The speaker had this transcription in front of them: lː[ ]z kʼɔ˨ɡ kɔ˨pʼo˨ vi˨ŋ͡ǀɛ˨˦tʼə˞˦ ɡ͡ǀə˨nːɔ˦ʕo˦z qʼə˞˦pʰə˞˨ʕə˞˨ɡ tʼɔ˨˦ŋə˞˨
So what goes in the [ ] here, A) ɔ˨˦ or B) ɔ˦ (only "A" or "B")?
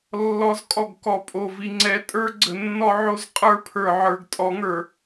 A